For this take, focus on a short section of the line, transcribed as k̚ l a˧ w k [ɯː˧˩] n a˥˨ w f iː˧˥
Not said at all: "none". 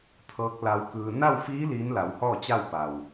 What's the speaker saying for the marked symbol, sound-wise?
ɯː˧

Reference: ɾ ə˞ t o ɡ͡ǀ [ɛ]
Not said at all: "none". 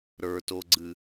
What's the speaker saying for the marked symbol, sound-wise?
ɨ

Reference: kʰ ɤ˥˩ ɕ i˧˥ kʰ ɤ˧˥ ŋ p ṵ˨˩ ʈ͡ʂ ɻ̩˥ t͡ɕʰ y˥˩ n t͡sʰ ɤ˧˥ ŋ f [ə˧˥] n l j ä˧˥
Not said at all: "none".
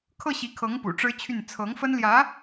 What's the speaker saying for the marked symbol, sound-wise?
ə˥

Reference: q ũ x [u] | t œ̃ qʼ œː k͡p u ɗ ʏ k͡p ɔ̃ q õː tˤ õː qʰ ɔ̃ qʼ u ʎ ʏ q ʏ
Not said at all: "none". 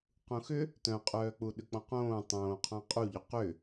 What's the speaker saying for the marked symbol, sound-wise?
ʏ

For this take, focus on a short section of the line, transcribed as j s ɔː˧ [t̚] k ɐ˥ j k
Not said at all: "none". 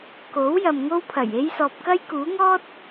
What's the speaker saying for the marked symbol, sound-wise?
p̚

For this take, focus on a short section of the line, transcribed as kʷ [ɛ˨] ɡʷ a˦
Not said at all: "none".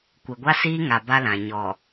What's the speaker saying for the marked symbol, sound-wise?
e˨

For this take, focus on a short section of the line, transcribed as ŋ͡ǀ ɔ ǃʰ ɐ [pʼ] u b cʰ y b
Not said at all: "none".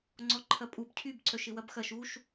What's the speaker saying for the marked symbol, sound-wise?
pʼ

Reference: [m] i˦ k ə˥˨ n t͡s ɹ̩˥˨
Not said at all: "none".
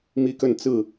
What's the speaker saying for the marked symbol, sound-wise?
m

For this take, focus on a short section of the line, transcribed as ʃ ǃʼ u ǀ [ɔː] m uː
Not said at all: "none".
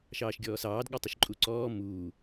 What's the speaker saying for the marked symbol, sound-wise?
ɔː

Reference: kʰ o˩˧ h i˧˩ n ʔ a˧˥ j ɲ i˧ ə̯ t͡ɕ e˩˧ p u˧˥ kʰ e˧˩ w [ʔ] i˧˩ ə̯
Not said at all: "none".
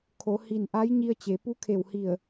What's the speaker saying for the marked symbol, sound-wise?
h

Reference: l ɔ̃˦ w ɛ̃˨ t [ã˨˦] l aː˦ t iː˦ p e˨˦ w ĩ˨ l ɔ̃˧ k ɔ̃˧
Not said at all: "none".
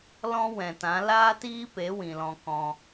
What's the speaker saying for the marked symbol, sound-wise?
ã˨˦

